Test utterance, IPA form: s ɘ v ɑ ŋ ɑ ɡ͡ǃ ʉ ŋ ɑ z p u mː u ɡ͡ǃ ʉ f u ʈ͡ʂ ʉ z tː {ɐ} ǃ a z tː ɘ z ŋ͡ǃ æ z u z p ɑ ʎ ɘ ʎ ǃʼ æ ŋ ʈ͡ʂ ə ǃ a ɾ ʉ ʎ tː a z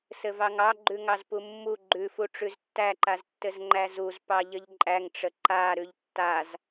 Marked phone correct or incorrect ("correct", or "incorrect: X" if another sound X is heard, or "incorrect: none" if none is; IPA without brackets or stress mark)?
incorrect: æ